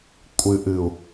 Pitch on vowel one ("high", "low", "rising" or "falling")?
low